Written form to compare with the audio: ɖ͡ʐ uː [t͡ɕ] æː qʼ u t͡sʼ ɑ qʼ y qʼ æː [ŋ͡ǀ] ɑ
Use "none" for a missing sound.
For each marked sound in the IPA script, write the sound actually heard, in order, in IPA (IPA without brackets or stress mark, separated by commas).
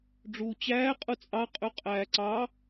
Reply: t͡ɕ, ǀ